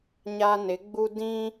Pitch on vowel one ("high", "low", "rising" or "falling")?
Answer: high